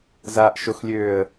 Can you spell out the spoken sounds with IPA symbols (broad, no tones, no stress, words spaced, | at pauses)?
zaːʔʃoxlʲøːə̯